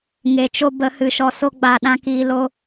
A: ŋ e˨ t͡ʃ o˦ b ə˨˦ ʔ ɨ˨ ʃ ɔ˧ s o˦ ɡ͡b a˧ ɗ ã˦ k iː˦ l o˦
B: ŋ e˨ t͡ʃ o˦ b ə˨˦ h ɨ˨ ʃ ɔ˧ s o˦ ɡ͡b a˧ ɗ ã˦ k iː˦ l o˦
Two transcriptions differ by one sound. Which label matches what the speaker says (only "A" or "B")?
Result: B